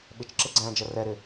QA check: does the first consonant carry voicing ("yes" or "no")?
yes